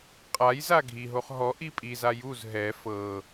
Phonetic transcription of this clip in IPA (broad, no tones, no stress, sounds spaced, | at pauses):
qʼ a j z a ɡʱ i ɦ o χ ɦ ɔ ʔ i pʼ i z a j u z ɦ ɛ f ɤ